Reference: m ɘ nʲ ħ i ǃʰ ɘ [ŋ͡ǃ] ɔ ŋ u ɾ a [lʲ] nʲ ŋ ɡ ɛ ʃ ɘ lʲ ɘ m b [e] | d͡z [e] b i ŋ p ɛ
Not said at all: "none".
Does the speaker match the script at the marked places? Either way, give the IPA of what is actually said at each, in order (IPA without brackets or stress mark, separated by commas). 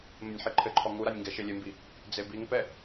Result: ǃʰ, none, i, e